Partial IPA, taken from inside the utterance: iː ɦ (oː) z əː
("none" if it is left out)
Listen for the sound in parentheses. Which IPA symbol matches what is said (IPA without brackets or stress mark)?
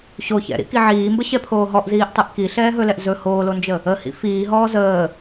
ɔː